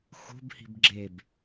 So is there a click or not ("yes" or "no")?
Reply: yes